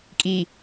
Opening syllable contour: low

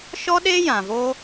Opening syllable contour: high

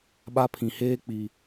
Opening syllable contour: high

